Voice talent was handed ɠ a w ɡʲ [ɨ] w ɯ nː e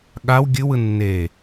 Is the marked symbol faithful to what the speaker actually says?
yes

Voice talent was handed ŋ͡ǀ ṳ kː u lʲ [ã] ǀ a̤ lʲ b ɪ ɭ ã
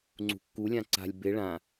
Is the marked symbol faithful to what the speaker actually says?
yes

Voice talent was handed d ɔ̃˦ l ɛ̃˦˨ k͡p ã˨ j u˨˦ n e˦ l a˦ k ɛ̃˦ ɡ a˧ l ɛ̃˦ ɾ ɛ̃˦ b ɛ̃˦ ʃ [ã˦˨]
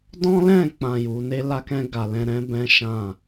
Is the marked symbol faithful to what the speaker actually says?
yes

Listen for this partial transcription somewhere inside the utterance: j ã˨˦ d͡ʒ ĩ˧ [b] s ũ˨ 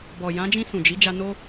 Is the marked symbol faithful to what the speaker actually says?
no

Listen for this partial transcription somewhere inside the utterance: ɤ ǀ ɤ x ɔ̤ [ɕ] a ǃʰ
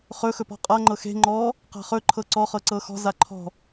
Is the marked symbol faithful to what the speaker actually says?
no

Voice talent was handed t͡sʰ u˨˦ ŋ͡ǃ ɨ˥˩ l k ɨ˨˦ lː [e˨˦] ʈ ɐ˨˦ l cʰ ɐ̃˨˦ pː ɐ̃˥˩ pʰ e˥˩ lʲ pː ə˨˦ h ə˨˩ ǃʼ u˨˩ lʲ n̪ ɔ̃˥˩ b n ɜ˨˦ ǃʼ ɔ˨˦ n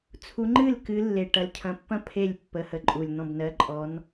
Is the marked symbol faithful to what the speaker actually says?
no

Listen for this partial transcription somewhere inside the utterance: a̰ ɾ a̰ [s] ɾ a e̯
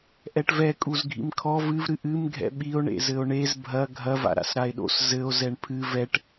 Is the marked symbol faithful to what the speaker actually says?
yes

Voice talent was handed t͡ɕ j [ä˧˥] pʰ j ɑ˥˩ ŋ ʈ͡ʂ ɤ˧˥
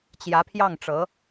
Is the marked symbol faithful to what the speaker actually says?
yes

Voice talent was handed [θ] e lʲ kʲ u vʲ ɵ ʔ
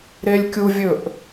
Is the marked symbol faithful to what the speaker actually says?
no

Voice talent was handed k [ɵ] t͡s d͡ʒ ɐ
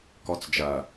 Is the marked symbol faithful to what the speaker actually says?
no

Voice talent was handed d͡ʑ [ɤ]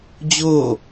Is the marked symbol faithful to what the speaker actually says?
no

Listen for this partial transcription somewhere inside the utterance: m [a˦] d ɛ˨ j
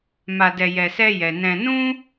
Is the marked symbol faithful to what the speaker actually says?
no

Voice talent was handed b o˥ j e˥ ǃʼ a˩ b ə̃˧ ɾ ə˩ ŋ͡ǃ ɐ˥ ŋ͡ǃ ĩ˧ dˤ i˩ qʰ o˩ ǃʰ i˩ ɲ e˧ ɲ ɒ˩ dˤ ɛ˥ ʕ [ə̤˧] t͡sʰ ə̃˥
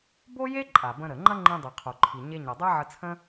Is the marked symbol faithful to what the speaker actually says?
no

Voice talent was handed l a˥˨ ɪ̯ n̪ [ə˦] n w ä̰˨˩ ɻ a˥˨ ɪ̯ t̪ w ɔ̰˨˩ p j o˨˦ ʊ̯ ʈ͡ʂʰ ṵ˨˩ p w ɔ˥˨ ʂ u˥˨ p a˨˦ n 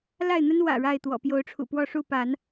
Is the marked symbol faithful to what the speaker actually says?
yes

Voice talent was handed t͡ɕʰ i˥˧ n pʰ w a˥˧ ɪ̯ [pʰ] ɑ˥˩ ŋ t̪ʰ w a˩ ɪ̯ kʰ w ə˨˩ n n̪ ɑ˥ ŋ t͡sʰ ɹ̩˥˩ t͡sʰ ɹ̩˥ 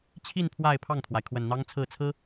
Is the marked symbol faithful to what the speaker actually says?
yes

